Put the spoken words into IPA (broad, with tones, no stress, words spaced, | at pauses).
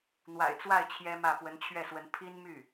n̪wa̰˨˩ɪ̯t͡swa˥˩ɪ̯ t͡ɕʰjɛ˥mä˥˩ pwə˧˥nt͡ɕʰɥɛ˥˩swə˧˥n pʰi˥nmy˥˩